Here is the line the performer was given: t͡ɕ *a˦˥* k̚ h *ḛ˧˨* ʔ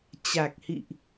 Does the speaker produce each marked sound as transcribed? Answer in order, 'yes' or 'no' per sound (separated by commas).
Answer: no, no